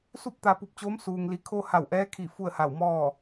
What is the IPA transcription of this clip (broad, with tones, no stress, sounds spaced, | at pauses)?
s u˥˨ p̚ t̪ a˧ p u˧ p̚ t͡ɕ oː˧˥ m s uː˩ ŋ l i˩˧ kʰ o˧ h a˧˩ w ʔ ɛː˧˥ kʰ i˧˩ f u˥˨ ə̯ h a˧˩ w m ɔː˥˨